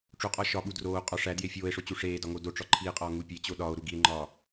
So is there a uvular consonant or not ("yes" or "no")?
yes